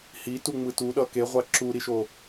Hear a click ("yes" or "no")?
yes